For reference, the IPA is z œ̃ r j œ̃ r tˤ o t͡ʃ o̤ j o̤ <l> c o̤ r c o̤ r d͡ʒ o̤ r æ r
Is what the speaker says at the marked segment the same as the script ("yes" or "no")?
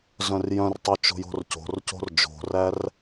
no